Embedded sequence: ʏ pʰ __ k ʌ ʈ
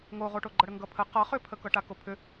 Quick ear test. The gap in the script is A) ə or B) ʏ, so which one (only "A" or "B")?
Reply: A